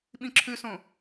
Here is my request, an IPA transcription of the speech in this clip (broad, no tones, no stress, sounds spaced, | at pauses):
ɓ ĩ ǁʰ ʉ s õ